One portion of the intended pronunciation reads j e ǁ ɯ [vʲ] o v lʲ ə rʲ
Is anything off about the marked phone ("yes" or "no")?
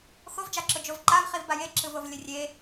yes